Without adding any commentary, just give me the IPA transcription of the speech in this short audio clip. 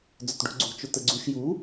d͡z ʊ t ɖ ṳ ɡ͡ǀ ṳ t͡ʃ ʊ t ə ɡ͡ǀ u ʃ j u

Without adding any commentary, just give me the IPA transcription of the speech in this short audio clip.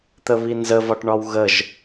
t̪ ə β i n z ə v ɒ ʈ ɳ ɒ w ɣ ə ʒ

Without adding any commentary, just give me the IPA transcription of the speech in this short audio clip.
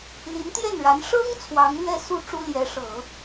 l i˧˥ n t̪ j ɛ˥˩ n ɻ a˧˥ n ʂ ɤ˥ ŋ t͡sʰ w ɑ˧˥ ŋ l ɥ ɛ˥˧ s u˥˩ ʈ͡ʂ u˥ l j ɛ˧˥ ʂ ɤ˨˩˦

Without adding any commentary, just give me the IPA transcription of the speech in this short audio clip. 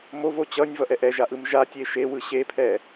m o v o t͡ɕ ʌ nʲ v ʌ ʔ ɛ ʔ ɛ ʒ a ʔ ɯ m ʒ a tʲ e ʃ e w ɯ ɕ e pʰ ɛ

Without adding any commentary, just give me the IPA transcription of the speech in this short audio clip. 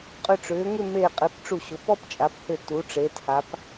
qʼ ʏ˧˩ ʈ͡ʂ ʏː˩˧ ŋ ʏ˥˧ m eː˧˩ qʼ e˩˧ p ʈ͡ʂ u˧˩ ɕ ʊ˩˧ p ɔ˥ p t͡ʃʼ a˩˧ p h ʏ˧˩ t u˩˧ ʈ͡ʂ eː˩˧ t h a˩˧ p

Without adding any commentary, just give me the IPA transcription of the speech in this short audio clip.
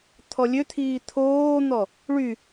t̪ʰ ɔ lʲ ø t̪ʰ iː t̪ʰ oː n̪ ɔ | ɭ y

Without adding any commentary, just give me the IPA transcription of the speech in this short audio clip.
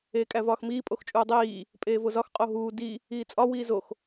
eː kʼ æ v ɒː x m iː pʼ o x t͡ʃʼ uː dˤ iː | pʼ eː v o z ɒ x qʼ o ɦ uː d i | iː t͡sʼ ɒ w iː z o x

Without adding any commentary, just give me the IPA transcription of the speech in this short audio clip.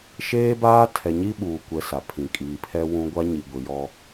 ʃ eː˦ b aː˦ tʰ ɛ˨ ɲ i˦ ɓ uː˨ kʷ ɛ˨ s a˨ pʰ ĩ˨ kʼ iː˨ pʰ ɛ˦ w ũ˦ ɡʷ a˦ ɲ i˨ ɡʷ i˨ j ɔ˦

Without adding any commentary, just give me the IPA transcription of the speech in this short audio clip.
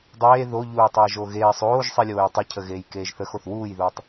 dˤ eː ð o ʎ uː tˤ eː ʒ o ɣ eː sˤ oː ʒ sˤ i lʲ oː j tˤ ɘ cʰ ə ɣ eː j k eː ʒ θ ə x o θ w uː j ð uː tˤ

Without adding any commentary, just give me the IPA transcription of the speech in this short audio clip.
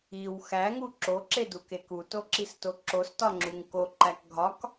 i w x æ ŋ u ǁ o ǁ e d u k e k u t o ǁ i s t o ǁ o s t ɒ ŋ͡ǁ u ŋ k o ǃ æ k ɡʱ ɒ k

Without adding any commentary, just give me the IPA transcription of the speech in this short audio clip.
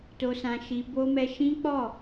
t o˧ s ã˧ ʃ i˧ b o˦ m ɛ˦ ʃ ĩ˦ k͡p ɔ˦˨

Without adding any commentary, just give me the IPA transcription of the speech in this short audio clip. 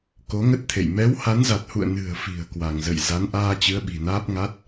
k o˨˦ ŋ ə˦˥ t̚ t̪ʰ ḛ˧˨ j m ɛ˨˦ w h a˨˦ n z a˨˩ t̚ h ṵ˧˨ ə̯ n ɨ̤˨˩ ə̯ f i̤˨˩ ə̯ k w a˧˩ ŋ z ə̰˧˨ j z a˨˦ n ʔ aː˧ t͡ɕ ɨ˨˦ ə̯ ɓ i̤˨˩ n aː˦˥ p̚ ŋ a˦˥ t̚

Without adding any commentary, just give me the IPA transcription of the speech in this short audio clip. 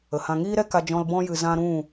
ə˨ h ã˧ ŋ iː˦ ɾ ɛ˦ k a˧ d͡ʒ ɔ̃˧ l b ɔ̃˧ j ɨ˨ z ã˧ ɾ ũ˦˨

